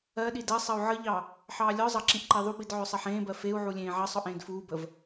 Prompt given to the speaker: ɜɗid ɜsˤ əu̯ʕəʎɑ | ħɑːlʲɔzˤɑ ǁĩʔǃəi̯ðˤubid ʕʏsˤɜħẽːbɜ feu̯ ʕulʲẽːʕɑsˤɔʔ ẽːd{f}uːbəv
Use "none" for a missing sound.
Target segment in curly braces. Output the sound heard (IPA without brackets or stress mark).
f